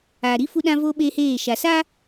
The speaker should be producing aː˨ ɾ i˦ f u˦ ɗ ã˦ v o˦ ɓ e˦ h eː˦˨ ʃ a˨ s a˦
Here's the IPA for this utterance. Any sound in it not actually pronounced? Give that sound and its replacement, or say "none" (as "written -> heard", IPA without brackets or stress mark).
none